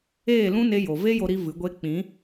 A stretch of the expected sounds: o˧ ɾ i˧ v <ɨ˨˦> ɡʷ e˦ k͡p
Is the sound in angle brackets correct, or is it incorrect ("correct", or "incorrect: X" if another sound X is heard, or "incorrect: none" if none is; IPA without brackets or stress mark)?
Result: correct